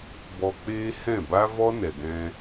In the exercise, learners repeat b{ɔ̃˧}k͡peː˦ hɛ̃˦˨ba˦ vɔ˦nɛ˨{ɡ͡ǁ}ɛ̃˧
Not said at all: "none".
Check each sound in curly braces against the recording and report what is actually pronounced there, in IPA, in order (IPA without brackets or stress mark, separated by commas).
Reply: ɔ˧, ɡ